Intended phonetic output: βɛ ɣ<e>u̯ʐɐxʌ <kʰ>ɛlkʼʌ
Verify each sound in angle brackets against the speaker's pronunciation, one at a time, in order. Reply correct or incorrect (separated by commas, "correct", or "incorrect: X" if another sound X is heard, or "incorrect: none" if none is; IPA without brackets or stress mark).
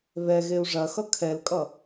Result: correct, correct